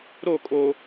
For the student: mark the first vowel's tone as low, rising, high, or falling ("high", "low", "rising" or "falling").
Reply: falling